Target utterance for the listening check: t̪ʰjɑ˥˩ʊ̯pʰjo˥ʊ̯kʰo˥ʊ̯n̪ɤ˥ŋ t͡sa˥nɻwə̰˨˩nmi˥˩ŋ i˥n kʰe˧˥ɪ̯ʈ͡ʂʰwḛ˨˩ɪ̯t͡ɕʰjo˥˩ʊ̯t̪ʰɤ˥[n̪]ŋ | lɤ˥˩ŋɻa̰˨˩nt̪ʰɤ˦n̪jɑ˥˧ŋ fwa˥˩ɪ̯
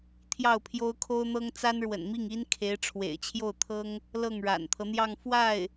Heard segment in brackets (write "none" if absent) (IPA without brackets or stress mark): none